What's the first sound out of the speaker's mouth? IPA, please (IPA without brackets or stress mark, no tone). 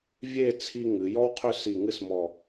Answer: vʲ